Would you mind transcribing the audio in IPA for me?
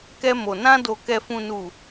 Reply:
k ɛ˧ m o˨ n ã˧ d o˨ k ɛ˨ f ũ˨ n u˨

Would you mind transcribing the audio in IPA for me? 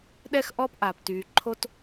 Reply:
ɗ ɛ˥ x ʔ ɔ˥ p ʔ aː˩ p t yː˩ ǃʰ o˥ t

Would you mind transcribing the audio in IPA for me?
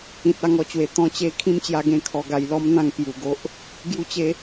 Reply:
ĩ˨ t̚ a˧ ŋ ɔ˧ t͡ɕ w e˨˩ t̪ ɔ̃˧ t͡ɕ e˧ kʰ ĩ˥˧ m t͡ɕ j a˧ ɡ ẽ˦ kʰ ɔ˧ ɡ a˧ j l ɔ˦ m n̪ ã˧ ŋ p j u˨˩ ɡ o˦ ʔ | ɡ j u˦ t͡ɕ e˦

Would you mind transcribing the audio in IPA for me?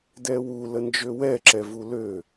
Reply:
d ɛ w u l ə n d͡ʒ ø w ɛ ǁ ɛ v u l ø

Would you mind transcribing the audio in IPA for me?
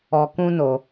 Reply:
ɔ˧ k ũ˦ n o˧

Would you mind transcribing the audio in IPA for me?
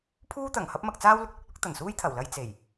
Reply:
pʰ uː˥ t̪ ɐ˨˩ ŋ h ɐ˥ p̚ m ɐ˧ k̚ t͡s aː˥ w l ʊ˨ k̚ l ʊ˥ k̚ l ʊ˨˥ k̚ t̪ ɐ˨˩ n s uː˥ j t̪ʰ ɐ˨˩ w l ɐ˧ j t͡s e˨˩ j

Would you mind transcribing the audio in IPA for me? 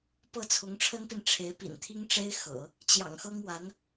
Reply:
p ɤ˥˩ t͡sʰ ʊ˧˥ ŋ ʈ͡ʂʰ ə˥ n p i˨ n ʈ͡ʂʰ e˧˥ ɪ̯ p ḭ˨˩ n t̪ʰ i˥ ŋ ʈ͡ʂ e˥ ɪ̯ x ɤ̰˨˩˦ | t͡ɕ j ɑ̰˨˩ ŋ x ɤ˥ ŋ w a˧˥ n

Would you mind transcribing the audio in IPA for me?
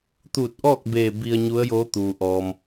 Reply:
t̪ uː˧˩ t̚ ʔ ɔː˥˨ k̚ b eː˧˩ b i˧ ə̯ ɲ u˧˥ ə̯ j oː˧˥ t̪ uː˩ ʔ ɔː˩ m

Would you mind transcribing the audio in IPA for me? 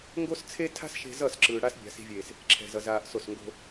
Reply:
ŋ ɡ o˦ s t͡sʰ e˦ tʰ a̤˦ s ʃ e̤˧ z ʌ˦˨ s ǁ ɯː˨ ɽ a˧ s bʲ a̤˨ s i̤˨ vʲ eː˨ s | ǁʰ ɛ̤˧ z ʌ˧ z aː˧ ʔ s o˦˨ s ŋ ɡ o̤˧

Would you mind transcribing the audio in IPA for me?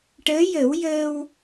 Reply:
ʈ əː˧˥ j ə˨˩˦ w j əː˧ w

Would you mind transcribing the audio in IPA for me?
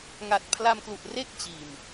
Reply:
ŋ a˨˩ t̚ pʰ l a˧ m k l u˨˩ ʔ r e˥˩ k̚ t͡ɕ iː˨˩ m

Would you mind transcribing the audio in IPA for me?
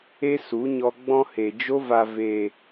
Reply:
e˦ s u˨˦ ɲ ɔ˧ ɡ͡b ɔ̃˦ h e˨ d͡ʒ o˧ v a˨ v eː˨

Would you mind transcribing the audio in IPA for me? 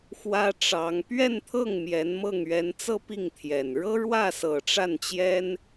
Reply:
x w ä˥ ʈ͡ʂ ɑ˧˥ ŋ p ɥ ɛ˥˧ n t̪ʰ ɤ˥˩ ŋ m j ɛ˧˥ n m ɤ˥˩ ŋ ɥ ɛ˧˥ n t͡s ɤ˥ p i˥˩ ŋ t̪ʰ j ɛ˨˩ n ɻ ɤ˥ ɻ w ä˥˩ s ɤ˨˩ ʈ͡ʂ a˥˩ n t͡ɕ j ɛ˥ n

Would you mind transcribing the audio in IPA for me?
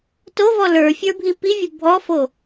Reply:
t o v ɔ l ə˞ fʲ ə˞ bʱ i p i vʲ ə bʱ ɔ f o

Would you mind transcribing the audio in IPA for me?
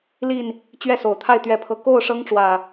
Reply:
l i˥˨ n | t͡ɕ ɥ ɛ˥˨ s o˨˩ ʊ̯ t̪ʰ a˥˨ ɪ̯ t̪ ɥ ɛ˥˨ pʰ ɤ˥˨ k o˥˨ ʊ̯ ʂ ɤ˦ ŋ ʈ͡ʂ w ä˨˩

